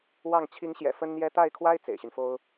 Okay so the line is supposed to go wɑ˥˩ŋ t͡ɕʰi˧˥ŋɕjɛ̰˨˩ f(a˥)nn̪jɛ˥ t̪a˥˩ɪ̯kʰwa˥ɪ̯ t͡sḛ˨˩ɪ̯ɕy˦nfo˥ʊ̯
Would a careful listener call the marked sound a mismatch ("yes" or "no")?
yes